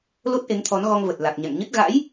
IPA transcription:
lo˦˥t̚ʔe˨˦ŋt̪ʰɔ˨˦n ɣɔ˧ŋvə˨˩t̚ la˨˩k̚ɲa̰˧˨ŋɲɨ˦˥t̚ ɣa̰˧˥j

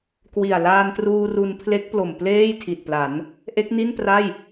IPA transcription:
kwi˨˩a̯laː˧ntruː˧ ru˧npʰle˦˥k̚plo˨˩m pleː˥˩jtʰi˨˩t̚pla˩˦n | ʔe˦˥k̚ni˥˩npra˥˩j

